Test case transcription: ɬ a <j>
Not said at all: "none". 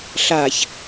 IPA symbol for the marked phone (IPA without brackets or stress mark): ç